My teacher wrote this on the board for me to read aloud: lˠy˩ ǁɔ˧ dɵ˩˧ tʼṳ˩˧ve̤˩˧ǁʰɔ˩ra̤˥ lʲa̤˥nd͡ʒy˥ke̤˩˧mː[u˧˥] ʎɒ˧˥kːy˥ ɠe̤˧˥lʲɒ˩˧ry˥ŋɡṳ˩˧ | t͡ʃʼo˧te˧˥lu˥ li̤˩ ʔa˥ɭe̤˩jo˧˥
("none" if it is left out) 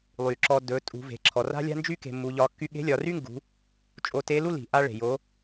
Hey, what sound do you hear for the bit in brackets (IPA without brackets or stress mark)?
u˩˧